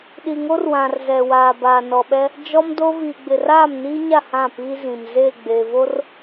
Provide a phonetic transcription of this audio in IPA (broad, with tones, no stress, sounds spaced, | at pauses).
ɗ i˨ ŋ o˦ r w ã˨ r z ɛ˨ w aː˨ b aː˨ n ɔ˨ ɓ ɛ˦ | d͡ʒ ɔ˦ m d o˦ v iː˨ ɡ͡b ɪ˨ r aː˦˨ m n iː˦ ɲ a˦˨ h ã˦˨ p iː˦ z ĩ˨ m z eː˦˨ ɡ͡b eː˨ v o˦ r